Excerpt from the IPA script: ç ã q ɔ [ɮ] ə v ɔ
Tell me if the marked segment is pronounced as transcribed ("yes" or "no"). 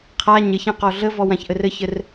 yes